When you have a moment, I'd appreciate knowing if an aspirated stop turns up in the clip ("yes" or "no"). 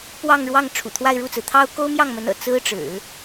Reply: yes